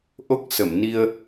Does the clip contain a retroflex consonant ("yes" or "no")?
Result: no